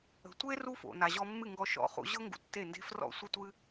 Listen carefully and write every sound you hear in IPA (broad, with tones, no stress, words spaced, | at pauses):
ə̤˨tʷe˦ ru˦fo̰˨ na˨ʑɔ˧mːɨ˦˨ ŋɡɔ˧ʃɔ̰˦˨ χṵ˧ʑɤ˦ ŋɡṵ˧tːe˦˨nde̤˦ frɔ̰˦˨sʷə˦tʷɨ˦